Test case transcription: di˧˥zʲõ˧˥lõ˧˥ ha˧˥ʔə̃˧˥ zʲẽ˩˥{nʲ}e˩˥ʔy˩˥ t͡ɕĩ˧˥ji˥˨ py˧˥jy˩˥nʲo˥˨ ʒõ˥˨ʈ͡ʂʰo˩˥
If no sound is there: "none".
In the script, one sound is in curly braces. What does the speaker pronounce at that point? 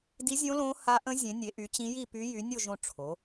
nʲ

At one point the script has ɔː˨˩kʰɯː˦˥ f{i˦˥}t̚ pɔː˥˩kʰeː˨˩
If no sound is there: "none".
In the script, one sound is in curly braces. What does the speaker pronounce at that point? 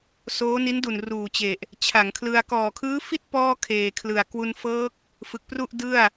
i˥˩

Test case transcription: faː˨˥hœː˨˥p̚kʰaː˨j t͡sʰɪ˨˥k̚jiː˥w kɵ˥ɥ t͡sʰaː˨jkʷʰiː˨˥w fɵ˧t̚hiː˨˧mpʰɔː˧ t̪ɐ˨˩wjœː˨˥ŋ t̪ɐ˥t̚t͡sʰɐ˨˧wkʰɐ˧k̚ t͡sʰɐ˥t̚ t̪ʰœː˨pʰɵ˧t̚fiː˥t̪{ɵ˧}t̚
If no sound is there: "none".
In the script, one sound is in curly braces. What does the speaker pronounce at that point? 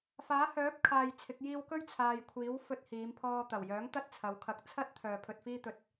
ɵ˧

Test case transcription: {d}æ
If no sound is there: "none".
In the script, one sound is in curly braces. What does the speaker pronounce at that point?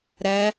ɾ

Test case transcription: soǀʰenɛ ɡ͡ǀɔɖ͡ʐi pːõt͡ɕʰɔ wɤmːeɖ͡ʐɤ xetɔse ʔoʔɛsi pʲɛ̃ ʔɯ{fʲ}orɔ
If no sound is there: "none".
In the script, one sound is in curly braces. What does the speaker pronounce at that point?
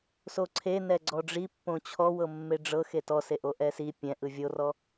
vʲ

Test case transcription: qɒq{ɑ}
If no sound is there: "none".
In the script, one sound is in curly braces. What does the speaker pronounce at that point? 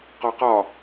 ɒ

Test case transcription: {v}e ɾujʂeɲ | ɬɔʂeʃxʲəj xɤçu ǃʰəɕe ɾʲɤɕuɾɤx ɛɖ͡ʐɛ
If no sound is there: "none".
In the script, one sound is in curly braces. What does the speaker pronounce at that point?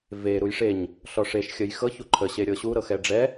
v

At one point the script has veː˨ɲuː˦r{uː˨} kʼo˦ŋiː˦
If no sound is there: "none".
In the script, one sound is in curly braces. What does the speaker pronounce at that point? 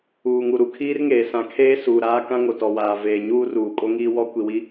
uː˨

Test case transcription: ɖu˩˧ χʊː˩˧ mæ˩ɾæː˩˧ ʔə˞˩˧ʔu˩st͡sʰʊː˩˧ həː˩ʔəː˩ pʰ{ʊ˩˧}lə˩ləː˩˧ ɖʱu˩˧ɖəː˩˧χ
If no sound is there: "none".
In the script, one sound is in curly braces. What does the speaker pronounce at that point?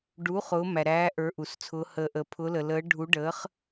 ʊ˩˧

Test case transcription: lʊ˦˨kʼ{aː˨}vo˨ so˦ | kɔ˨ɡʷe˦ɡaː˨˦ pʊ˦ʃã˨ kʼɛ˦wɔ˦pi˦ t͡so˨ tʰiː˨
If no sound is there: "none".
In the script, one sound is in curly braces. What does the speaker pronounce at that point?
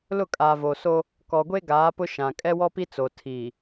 aː˨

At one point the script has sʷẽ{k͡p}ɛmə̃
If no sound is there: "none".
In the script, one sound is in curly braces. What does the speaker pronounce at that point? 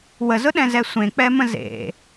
k͡p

